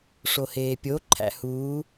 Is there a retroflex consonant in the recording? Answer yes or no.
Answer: yes